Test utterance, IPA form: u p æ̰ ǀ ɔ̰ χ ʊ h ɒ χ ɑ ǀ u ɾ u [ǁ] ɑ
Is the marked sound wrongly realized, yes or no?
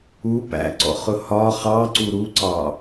yes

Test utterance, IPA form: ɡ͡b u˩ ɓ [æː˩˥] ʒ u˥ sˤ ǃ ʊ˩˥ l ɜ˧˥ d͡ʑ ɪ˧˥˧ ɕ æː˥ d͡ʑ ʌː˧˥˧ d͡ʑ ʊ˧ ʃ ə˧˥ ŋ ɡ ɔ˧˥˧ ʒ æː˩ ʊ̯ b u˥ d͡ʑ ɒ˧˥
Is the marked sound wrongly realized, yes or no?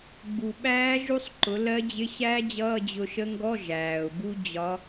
yes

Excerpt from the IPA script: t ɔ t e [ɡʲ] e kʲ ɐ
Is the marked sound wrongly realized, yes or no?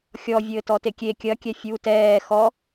yes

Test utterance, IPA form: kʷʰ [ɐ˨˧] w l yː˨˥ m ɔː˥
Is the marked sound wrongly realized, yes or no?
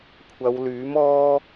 no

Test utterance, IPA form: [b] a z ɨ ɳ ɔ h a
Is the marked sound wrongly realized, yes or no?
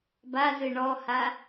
no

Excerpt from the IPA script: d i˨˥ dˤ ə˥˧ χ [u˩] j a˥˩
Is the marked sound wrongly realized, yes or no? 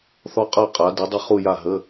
yes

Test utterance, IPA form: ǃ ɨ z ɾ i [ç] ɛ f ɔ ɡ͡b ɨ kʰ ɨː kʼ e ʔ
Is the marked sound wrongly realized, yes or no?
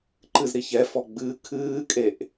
no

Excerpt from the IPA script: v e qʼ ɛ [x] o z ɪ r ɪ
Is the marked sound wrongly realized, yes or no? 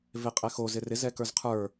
no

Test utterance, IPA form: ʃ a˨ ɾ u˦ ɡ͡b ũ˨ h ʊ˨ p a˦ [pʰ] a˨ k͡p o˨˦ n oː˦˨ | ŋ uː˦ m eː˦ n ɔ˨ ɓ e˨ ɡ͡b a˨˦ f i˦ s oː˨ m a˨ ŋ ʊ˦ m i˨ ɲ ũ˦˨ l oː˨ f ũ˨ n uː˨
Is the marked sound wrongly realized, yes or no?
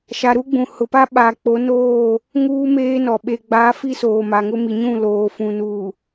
yes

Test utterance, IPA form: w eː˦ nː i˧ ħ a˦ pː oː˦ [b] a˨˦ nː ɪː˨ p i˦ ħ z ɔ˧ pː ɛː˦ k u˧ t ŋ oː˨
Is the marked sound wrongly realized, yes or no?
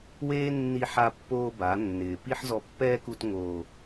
no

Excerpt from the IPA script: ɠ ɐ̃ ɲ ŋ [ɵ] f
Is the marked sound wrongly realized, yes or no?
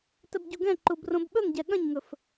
no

